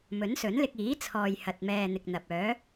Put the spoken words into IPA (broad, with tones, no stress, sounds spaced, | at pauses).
m ɵ˨˥ n s ɵ˨˥ n l ɪ˧ k̚ iː˨˥ t͡sʰ ɔː˨ j h ɐ˨ t̚ m ɛː˨ n̪ ɪ˨ k̚ n̪ ɐ˨ p̚ œː˨˥